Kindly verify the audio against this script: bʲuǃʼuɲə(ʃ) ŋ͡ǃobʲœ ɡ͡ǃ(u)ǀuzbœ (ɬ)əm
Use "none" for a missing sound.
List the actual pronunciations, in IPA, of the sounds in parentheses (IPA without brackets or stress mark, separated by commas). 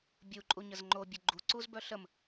z, u, ɬ